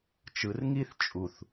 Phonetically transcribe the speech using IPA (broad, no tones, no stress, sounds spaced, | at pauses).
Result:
t͡ʃ ɯ r ŋ i θ t͡ʃʼ u θ